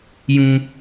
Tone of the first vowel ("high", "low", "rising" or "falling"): high